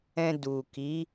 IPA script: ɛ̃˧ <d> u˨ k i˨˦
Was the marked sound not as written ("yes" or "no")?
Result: no